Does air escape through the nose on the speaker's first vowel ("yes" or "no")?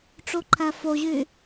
no